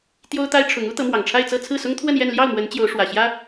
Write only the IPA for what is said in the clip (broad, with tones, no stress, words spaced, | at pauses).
t̪jo˥ʊ̯t̪a˥ɪ̯ʈ͡ʂʰʊ˧˥ŋ u˥ t̪ɤ˧˥mwɑ˨˩ŋʈ͡ʂʰa˥˧ɪ̯t͡sɤ˥˧ t͡sʰɹ̩˥˩sʊ˥ŋt̪ʰwə˥˧njɛ˥˧n ljɑ˥˩ʊ̯mwə˧˥n t͡ɕjo˧˥ʊ̯ʂwä˨˩ɕjä˥